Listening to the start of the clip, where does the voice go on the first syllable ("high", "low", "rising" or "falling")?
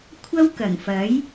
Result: high